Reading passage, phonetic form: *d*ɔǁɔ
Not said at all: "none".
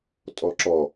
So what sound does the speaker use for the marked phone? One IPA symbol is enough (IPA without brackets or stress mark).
tʼ